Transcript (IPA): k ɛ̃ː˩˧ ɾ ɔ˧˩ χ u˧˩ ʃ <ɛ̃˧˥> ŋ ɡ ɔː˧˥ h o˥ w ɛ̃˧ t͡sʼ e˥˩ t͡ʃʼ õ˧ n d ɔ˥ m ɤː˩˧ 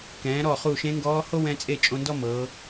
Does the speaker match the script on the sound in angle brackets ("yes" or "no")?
no